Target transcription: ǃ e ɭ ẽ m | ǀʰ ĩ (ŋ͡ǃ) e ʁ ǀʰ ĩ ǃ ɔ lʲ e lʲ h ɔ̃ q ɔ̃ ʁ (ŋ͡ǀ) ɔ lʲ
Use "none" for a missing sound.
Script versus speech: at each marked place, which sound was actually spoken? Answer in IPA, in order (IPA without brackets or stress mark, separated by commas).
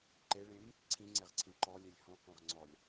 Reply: ŋ͡ǀ, ŋ͡ǀ